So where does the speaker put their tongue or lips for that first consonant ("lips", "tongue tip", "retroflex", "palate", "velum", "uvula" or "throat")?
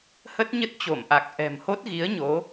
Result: throat